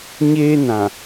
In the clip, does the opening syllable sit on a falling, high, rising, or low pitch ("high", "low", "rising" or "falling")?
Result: high